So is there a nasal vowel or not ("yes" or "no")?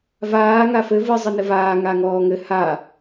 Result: no